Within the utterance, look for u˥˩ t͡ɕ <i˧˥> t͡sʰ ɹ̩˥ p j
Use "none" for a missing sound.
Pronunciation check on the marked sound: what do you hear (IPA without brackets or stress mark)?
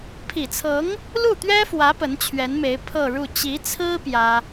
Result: i˧˥